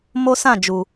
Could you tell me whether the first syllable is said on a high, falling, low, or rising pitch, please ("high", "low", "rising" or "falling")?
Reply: high